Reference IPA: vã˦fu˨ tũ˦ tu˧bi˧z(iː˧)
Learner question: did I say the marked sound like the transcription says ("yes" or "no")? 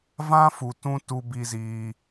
yes